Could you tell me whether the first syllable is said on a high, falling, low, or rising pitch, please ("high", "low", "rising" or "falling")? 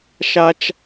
high